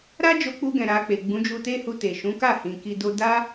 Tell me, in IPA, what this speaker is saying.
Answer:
ɾa˦d͡ʒo˧k͡pu˧ɡɛ̃˨ ɾa˧k͡pe˨ ɡ͡bũ˨˦d͡ʒu˧te˦hu˧ te˨ʃũ˨˦ ka˦˨hĩ˨ ki˨ do˧ da˦

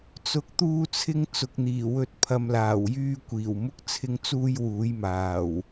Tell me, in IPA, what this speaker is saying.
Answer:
t͡sʊ˨k̚t̪uː˧t͡sʰɪ˧ŋ t͡sʊ˨k̚n̪iː˨˩wɵ˧t̚ pʰɐ˨mlaː˨˩wjyː˧kʷiː˨˩w mʊ˧k̚t͡sʰɪ˨˧ŋt͡suː˧j wuː˨˥jmaː˨˩w

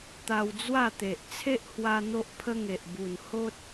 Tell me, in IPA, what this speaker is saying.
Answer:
t̪a˧wd͡zwa˥˧t̪e˨ʔ t͡sʰe˦ʔhwa˧ n̪o˦ʔpʰə˦ŋe˨ʔ bu˨˩n ho˦t̚

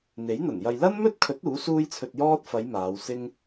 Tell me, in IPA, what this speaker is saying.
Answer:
n̪e˨˥jn̪ɐ˨˩n jɐ˨jlɐ˥nmɵ˥t̚kʰɵ˨˥t̚ uː˨˥suː˥jt͡sʰɵ˧t̚jɔː˥t̚ fɐ˨˧j maː˨˧wsɪ˥ŋ

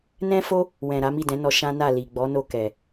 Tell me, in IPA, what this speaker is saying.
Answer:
nɛ̃˧fo˧ | wɛ̃˨ ɾa˨˦mi˦˨dɛ̃˨˦nɔ˧ ʃã˦na˦˨ li˨ɡ͡bɔ˨˦no˧ kɛ˨

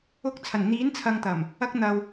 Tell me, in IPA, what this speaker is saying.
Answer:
ʊ˧k̚t͡sʰɐ˨˩nn̪iː˨˥nt͡sʰɐ˨ŋ t̪ɐ˨˩m | ɐ˧k̚ n̪ɐ˨w

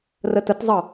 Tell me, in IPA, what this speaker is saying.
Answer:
rətətzˤɤ

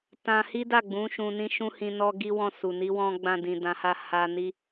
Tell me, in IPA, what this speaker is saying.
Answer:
tã˧hi˦da˦˨ɡ͡bũ˨˦ ʃũ˧nĩ˦ʃũ˦hĩ˧ nɔ˦ɡi˦wɔ̃˦˨su˨ ni˨˦wɔ̃˧ ɡ͡bã˧dĩ˨dã˨˦ha˦˨ ha˧ni˦

